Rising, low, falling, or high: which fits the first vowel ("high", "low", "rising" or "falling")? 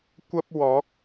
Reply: high